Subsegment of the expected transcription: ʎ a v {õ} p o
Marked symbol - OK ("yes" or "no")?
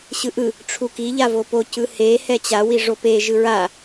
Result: no